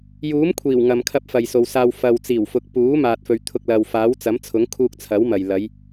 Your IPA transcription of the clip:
j uː˨˥ m kʷʰ iː˨˩ w ŋ ɐ˨ m kʰ ɐ˧ p̚ f ɐ˨ j s o˨ w s aː˧ w f ɐ˨ w t͡s iː˨˩ w f ʊ˨ k̚ p uː˨˥ m aː˧ t̚ f ɵ˧ ɥ t̪ʰ ʊ˧ k̚ l ɐ˨ w f aː˨˥ w t͡s ɐ˨˥ m t͡sʰ ʊ˨˥ ŋ kʰ uː˧ k̚ t͡sʰ ɐ˨˥ w m ɐ˨ j l ɐ˨˧ j

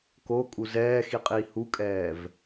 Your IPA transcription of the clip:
k o kʼ u z ɛː x i qʼ iː h u kʼ ɛː v

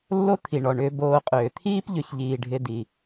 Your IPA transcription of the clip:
lː o˦ t̪ʰ i˩ ɳ ɔ˩ ɳ ʏː˨ b oː˨ qʼ ʏː˩ t̪ʰ iː˦ p ʎ ʏ˩ ç ʎ iː˩ ɖʱ ɪ˨ d i˩

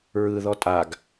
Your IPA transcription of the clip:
ɹ ɯ ð ɔ tʼ a ɡ

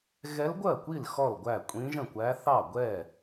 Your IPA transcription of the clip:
ɣ ɛ˧˥ l ɡʷ ɜ˥˩ kʷ i˥˩ l x ɔ˥˩ l ɡʷ æ˥˩ kʷʼ ĩ˧˥ ʒ ə̃˥˩ kʷ æ˧˥ θ ɑ˥˩ ɡʷ ɛ˥˩

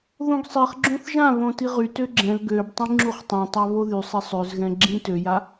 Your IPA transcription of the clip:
ð õ ɡ sˤ i χ ɡ͡ǁ õ θ ʒ ã β õ t i ʁ y t ø ɡ͡ǁ ɛ̃ l ɡ ø b tˤ ĩ ŋ͡ǁ u χ tˤ õ tˤ a β o ð y sˤ e sˤ ø z ɣ ɛ̃ ɡ͡ǁ ĩ t ø j a

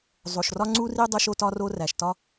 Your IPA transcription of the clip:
zˤ o˩ ʃ r ɒ˥ ŋ͡ǀ u˥ r i˥ dˤ o˥ ʃ o˥ t ɒ˥ r o˥ r æ˩ ʃ t ɒ˥

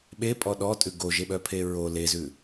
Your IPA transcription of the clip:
ɓ e pʼ ɔ ɗ ɔ tʼ ʉ ɡ o ʒ e ɓ œ pʰ e ɹ o l e z ʉ

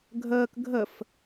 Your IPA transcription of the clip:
ɡʱ əː k ɡʱ ə f

